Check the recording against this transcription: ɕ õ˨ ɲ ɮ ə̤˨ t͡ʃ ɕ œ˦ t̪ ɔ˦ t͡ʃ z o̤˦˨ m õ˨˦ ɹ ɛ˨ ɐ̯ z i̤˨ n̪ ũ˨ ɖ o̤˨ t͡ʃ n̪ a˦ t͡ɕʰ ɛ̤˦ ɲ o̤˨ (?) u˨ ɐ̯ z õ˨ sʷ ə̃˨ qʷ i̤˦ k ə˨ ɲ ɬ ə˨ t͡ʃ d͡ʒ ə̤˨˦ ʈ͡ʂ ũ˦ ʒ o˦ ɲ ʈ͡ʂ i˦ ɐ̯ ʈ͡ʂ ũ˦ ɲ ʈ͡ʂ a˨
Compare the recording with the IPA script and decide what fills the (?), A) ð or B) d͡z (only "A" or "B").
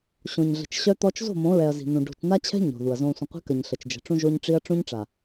A